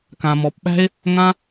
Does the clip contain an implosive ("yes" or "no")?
yes